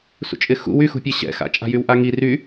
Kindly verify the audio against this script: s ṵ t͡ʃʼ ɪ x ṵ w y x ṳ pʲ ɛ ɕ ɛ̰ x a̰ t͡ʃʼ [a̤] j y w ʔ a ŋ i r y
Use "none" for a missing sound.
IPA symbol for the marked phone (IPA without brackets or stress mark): a̤